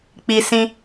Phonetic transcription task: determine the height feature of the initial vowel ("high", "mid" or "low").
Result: high